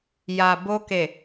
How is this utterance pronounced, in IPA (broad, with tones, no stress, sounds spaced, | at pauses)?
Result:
j a˨ b o˧ k e˨